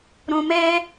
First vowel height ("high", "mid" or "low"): high